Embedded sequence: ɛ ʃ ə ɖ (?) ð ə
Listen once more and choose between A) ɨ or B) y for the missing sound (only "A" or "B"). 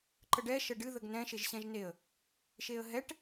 A